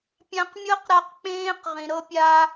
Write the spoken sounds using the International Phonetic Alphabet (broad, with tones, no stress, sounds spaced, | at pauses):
pʲ ã˦ q mʲ ɤ˥ q ɾ a˥ q k͡p ẽː˥ q ʁ ĩ˨ ɾ ɤ˦ pʲ a˦